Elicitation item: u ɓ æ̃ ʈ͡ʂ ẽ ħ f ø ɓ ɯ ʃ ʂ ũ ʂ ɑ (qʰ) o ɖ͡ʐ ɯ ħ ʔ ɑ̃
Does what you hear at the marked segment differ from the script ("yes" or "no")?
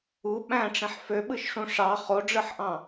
yes